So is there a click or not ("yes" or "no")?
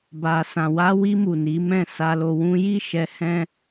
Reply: no